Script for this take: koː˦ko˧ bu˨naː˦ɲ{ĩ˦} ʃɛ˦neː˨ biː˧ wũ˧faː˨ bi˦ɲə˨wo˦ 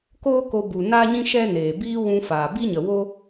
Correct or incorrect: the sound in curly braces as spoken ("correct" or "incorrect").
correct